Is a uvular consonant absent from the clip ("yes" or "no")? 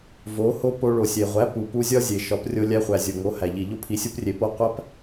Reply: no